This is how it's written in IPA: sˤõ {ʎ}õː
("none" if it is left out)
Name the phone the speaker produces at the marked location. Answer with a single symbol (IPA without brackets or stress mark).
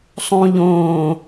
ʎ